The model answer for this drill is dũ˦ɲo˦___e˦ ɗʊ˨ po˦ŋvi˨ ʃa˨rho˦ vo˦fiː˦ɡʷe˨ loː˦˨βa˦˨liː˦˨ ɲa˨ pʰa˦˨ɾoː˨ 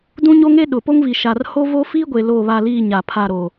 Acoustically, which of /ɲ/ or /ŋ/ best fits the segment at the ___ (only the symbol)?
ŋ